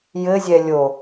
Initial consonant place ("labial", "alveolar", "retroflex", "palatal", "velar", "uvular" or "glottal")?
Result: palatal